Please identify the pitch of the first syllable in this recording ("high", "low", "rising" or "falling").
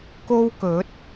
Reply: high